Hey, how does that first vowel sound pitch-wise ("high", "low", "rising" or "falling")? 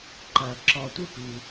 low